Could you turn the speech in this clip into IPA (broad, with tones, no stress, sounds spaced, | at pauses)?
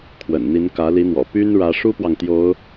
kʰ w ə̰˨˩ n n̪ i˧˥ n k ä˧˥ l i˧˥ n̪ w ɔ̰˨˩ p y˥ n ɻ ä˧˥ ʂ u˥ p w ɑ˨ ŋ t̪ j o˧˥ ʊ̯